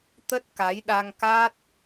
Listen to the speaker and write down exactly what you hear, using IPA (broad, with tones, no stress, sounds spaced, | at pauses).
t̪ ə˦˥ t̚ k a˨˦ j ɗ a˧ ŋ k a˦˥ t̚